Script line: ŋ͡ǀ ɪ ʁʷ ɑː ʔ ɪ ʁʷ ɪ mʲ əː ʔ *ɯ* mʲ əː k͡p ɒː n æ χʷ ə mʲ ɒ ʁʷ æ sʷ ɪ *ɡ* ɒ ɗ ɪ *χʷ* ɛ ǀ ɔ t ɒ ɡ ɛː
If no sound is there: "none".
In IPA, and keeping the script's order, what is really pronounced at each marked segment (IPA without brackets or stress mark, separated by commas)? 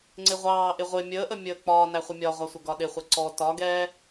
ə, ɡ, χʷ